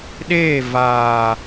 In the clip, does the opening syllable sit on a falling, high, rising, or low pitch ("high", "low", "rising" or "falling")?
falling